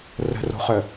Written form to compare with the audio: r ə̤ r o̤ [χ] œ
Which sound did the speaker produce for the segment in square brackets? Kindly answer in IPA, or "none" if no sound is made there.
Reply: χ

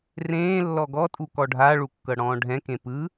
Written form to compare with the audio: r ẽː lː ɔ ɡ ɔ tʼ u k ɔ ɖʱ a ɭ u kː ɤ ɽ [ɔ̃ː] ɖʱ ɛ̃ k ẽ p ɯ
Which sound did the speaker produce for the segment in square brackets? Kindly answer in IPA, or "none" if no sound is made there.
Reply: ɔ̃ː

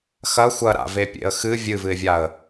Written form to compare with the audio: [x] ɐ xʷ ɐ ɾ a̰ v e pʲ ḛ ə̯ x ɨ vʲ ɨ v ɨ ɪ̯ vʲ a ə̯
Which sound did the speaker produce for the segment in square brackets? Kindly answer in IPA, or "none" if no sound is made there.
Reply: x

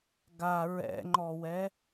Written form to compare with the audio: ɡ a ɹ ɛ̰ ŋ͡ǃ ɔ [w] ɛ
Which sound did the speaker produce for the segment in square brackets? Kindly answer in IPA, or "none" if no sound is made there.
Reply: w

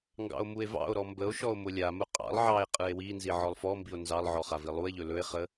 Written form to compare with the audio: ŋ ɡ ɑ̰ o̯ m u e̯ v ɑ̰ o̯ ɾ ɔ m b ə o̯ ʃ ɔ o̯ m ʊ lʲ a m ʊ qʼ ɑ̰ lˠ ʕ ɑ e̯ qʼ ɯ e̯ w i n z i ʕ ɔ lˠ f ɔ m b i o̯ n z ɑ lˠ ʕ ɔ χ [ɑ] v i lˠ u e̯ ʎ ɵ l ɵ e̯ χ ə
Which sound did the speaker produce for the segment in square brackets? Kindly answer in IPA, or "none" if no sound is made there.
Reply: a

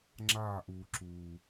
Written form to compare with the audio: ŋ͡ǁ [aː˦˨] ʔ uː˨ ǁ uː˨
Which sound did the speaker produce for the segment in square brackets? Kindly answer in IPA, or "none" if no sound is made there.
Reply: aː˦˨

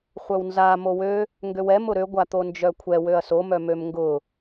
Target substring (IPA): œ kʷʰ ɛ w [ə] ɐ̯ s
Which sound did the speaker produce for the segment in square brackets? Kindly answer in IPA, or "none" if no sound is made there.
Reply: ø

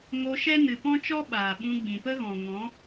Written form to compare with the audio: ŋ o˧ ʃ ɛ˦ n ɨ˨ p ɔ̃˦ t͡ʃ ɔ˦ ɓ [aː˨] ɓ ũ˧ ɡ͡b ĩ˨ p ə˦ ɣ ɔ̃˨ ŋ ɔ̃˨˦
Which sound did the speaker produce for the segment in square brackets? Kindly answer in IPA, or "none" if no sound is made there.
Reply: aː˨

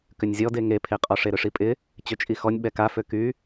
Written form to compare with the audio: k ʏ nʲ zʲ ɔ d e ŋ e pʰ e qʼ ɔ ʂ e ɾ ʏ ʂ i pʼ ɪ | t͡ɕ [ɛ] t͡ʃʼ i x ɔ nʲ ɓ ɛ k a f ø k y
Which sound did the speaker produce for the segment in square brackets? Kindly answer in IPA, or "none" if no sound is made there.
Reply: ø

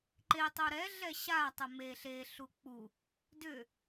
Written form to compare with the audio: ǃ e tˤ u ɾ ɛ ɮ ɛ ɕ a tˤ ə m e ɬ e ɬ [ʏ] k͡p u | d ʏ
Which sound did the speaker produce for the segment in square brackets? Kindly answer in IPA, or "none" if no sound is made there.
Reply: u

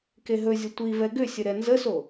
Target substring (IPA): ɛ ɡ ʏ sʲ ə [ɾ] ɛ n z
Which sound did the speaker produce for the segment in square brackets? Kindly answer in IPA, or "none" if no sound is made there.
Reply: ɾ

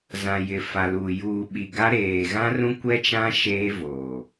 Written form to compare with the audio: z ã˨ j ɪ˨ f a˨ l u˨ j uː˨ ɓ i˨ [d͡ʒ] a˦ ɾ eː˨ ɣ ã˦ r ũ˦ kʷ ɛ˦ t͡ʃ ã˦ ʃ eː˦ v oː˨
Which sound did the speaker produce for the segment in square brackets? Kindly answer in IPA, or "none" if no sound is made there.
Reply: ɡ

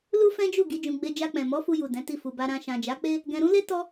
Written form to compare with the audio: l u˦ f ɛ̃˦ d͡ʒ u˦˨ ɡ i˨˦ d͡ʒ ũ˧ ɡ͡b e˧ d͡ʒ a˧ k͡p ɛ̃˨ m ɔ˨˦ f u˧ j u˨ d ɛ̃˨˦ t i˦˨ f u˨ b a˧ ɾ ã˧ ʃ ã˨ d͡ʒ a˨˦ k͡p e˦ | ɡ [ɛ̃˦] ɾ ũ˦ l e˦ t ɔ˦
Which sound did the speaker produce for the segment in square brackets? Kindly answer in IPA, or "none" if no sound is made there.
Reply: ɛ̃˧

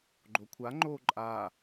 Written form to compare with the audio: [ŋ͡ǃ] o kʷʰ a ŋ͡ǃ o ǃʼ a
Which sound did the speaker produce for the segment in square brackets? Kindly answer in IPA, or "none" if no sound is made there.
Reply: ɡ͡ǃ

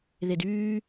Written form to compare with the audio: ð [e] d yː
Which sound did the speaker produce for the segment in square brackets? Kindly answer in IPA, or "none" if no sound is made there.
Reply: e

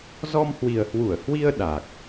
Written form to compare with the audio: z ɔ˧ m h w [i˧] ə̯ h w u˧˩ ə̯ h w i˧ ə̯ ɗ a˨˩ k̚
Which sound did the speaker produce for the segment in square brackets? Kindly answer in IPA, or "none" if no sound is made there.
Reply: i˨˩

